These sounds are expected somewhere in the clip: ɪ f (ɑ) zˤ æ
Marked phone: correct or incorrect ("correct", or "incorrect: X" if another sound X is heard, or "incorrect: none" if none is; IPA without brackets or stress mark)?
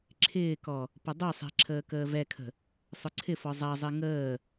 incorrect: ɔ